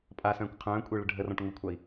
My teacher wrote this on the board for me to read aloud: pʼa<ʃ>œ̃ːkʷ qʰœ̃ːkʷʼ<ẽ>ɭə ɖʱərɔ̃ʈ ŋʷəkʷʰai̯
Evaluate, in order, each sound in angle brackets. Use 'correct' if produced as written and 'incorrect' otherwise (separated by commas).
incorrect, incorrect